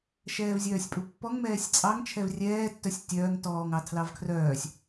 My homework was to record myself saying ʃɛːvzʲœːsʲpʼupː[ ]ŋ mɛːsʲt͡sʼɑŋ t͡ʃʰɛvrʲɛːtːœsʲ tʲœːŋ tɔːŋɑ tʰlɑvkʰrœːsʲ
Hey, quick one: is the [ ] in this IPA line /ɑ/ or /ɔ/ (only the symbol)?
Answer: ɔ